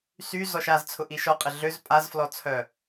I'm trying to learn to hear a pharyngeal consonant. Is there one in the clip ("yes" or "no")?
no